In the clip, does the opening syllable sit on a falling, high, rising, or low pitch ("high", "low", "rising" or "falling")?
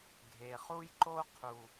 low